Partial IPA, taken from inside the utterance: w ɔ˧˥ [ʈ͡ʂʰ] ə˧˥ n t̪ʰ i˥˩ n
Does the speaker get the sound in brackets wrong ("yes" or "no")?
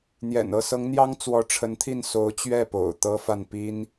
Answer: no